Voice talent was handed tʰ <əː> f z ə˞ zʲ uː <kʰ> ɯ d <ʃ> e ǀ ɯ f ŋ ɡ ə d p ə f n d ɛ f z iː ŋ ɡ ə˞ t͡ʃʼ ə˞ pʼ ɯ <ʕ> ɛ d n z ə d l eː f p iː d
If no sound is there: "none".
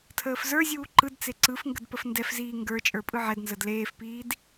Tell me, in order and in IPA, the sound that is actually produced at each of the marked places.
əː, ǃ, t͡s, ʕ

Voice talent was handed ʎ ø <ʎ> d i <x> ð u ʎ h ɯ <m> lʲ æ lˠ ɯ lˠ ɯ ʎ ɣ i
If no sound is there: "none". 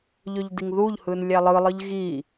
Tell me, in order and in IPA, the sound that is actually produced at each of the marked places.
ʎ, ŋ, n

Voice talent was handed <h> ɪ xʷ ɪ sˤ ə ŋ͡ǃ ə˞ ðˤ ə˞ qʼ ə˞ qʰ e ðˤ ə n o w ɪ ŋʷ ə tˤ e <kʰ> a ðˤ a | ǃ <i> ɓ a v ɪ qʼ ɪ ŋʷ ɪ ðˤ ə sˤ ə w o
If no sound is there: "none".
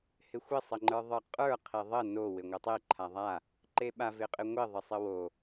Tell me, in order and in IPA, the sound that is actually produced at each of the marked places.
h, ǃʰ, e

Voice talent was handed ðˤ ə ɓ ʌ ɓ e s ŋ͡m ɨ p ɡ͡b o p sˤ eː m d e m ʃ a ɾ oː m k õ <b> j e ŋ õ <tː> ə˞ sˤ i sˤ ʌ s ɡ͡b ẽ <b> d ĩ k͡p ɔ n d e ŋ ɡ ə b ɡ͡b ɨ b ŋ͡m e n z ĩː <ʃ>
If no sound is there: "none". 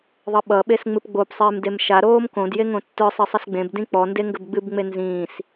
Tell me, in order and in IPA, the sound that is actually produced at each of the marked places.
d, tː, b, s

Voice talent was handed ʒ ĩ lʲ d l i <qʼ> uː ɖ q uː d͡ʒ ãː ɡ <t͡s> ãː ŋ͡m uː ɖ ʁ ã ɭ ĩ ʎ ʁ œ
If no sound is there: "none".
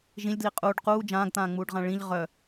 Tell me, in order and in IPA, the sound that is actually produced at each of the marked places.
qʼ, t̪

